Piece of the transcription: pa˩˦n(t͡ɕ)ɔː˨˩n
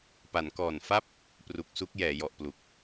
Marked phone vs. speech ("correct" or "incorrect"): incorrect